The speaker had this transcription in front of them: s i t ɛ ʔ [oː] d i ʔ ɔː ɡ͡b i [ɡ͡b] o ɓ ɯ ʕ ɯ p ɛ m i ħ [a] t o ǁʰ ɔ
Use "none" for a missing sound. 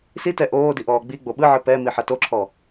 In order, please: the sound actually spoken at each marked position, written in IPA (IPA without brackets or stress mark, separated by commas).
oː, ɡ͡b, a